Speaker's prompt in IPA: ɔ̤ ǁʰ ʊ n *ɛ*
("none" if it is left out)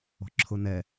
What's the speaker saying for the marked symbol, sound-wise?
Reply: ɛ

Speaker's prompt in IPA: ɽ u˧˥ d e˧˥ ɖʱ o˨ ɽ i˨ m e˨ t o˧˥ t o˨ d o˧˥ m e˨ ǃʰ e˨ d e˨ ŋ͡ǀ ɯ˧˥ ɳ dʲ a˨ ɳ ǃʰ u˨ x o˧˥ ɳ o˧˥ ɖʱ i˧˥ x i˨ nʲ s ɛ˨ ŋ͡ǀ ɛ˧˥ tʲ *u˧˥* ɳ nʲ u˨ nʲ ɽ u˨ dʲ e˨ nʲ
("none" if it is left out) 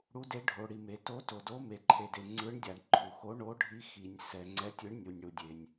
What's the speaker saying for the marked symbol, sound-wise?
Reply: ɯ˧˥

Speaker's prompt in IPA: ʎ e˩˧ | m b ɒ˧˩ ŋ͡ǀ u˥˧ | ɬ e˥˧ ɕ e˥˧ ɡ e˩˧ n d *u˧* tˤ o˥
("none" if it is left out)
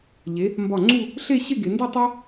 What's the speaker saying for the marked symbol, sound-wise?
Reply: u˥˧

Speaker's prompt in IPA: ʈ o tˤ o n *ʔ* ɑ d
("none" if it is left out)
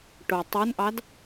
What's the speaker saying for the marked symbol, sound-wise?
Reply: ʔ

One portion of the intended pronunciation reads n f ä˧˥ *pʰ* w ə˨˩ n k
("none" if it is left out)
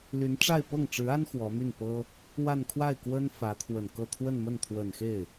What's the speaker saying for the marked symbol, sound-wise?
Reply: t̪ʰ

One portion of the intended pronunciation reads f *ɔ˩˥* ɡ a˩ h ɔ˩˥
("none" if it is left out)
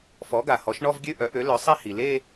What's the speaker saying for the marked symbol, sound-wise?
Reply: ɔ˩˥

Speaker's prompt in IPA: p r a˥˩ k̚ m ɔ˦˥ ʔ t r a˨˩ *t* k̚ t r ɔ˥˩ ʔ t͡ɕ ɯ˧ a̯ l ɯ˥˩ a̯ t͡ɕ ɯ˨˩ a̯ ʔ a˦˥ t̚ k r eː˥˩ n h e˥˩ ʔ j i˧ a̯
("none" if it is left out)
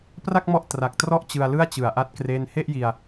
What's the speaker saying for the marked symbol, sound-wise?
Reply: none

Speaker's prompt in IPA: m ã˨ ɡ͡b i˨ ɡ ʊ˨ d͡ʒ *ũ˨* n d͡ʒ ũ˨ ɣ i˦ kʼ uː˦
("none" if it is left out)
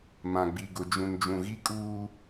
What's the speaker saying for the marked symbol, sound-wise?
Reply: ũ˨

